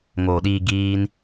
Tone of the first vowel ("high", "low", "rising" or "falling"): low